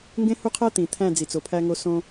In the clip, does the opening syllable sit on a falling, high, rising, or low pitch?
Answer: high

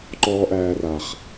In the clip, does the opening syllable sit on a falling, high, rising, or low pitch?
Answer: high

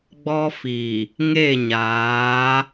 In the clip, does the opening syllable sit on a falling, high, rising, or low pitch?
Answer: high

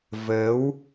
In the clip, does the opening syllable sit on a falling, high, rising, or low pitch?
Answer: rising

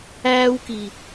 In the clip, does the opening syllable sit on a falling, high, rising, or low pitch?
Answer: high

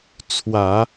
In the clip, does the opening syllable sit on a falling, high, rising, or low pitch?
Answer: low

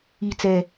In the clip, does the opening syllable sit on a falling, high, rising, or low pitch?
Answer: falling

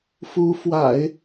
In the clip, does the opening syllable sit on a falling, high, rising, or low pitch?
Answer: rising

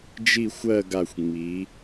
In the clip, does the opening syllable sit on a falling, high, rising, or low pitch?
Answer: falling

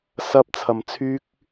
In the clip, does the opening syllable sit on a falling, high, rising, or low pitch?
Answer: high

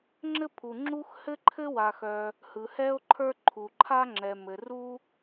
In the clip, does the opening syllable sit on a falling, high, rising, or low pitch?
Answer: high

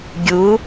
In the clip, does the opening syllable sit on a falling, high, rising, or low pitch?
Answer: rising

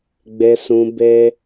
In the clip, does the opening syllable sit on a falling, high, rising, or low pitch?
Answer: low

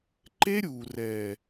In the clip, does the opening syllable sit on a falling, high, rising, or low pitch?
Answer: high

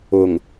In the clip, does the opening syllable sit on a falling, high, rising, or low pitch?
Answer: low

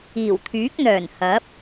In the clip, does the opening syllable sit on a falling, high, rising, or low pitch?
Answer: low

